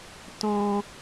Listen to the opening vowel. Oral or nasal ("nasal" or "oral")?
nasal